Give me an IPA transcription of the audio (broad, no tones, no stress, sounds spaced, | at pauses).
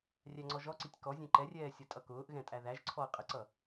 rʲ æ ŋ͡ǀ ɔ ʒ ɔ ǀ i tʲ k ɔ zʲ ɛ̃ ǃ ɛ rʲ ɛː sʲ ʌ tʼ ʌ k ʊː ʔ ɣ ɛ̃ tʼ æ ð æ ʒ ǀʰ ɔ ɐ̯ qʼ ə ǀ ʌ